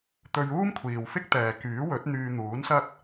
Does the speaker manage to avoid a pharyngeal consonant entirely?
yes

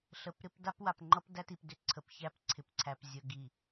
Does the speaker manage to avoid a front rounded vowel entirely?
no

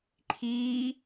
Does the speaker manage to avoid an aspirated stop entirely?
no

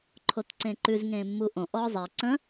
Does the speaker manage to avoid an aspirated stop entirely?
no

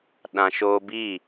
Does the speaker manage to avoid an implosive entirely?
no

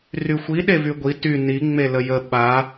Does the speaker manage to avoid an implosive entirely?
no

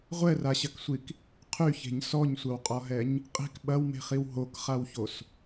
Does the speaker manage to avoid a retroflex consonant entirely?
yes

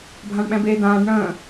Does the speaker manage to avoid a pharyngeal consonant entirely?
yes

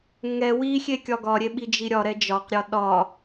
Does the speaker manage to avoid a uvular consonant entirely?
no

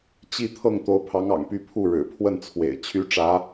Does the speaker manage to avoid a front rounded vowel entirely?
no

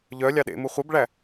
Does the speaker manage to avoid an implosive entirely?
no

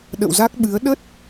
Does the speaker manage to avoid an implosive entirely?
no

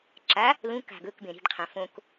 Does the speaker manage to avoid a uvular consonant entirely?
no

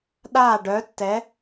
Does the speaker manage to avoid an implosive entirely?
no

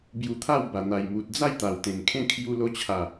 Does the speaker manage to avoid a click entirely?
yes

